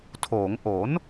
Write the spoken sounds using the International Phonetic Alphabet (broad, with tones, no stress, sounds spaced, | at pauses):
tʰ oː˩˦ ŋ ʔ o˩˦ n